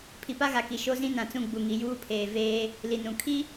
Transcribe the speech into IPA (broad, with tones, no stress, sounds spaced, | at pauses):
pʰ i˨ p a˦ ɣ a˨ k i˨ ʃ o˦ z ĩ˦ n ã˨ t͡s ũ˦˨ ɡ͡b u˨ ŋ i˨ j uː˦ pʰ eː˨ v eː˦ | l i˨ n ũ˨ kʰ i˦